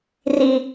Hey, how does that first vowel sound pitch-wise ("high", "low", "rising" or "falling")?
low